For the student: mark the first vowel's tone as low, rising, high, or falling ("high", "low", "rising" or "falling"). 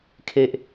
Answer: high